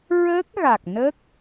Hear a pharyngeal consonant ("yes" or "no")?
no